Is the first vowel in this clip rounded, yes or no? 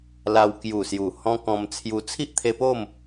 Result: no